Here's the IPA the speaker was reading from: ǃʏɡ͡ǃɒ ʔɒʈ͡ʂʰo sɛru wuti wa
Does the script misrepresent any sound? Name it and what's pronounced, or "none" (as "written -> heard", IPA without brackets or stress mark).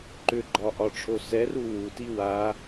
none